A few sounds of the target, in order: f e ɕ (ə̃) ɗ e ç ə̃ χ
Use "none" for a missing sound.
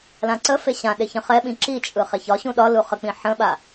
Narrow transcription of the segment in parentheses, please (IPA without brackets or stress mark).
ã